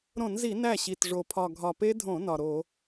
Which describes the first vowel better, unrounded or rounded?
rounded